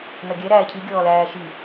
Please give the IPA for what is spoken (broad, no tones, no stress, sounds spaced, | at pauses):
n ɐ ɡʲ ɛ ɾ æː cʰ i ɡʲ ɔː l æː ʃ i